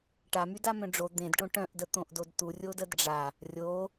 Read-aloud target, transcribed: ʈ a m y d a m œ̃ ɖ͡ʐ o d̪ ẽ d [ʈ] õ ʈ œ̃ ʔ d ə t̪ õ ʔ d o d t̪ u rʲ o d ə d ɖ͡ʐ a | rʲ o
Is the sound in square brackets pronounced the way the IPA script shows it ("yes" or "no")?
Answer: yes